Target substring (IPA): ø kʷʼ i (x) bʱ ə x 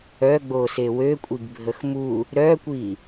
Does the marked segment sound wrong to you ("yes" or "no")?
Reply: yes